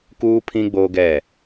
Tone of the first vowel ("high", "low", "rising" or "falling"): high